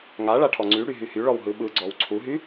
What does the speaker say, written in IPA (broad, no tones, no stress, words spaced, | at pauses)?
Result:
ŋa ɭaʈʰɔŋ͡ǀyɽy ɦyhyɭɔw ɦɯɓɯɡ͡ǀɔw ǀʰuɦy